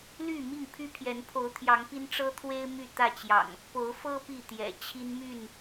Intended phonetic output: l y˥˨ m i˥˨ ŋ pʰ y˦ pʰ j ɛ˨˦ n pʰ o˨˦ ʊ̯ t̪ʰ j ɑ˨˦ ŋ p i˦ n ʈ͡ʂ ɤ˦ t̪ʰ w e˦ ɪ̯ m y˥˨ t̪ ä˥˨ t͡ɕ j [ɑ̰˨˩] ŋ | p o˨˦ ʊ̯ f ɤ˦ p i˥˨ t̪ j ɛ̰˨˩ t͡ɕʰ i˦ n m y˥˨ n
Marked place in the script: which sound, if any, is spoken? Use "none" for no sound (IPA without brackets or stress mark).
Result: ɑ̰˨˩